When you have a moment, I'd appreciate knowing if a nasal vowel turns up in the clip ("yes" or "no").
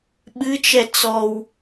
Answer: no